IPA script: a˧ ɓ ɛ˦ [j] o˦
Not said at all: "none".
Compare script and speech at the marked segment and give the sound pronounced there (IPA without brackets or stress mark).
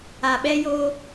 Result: j